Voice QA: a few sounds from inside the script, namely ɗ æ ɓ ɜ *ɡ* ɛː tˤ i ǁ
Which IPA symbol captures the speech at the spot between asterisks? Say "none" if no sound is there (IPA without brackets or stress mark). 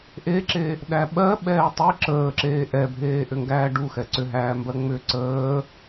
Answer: ɓ